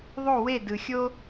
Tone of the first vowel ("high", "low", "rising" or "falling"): falling